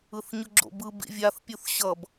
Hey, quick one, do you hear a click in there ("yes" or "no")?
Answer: yes